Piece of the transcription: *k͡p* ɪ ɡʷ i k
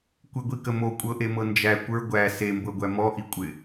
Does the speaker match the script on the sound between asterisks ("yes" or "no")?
no